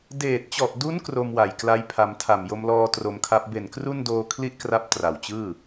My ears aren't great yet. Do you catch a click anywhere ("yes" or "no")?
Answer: no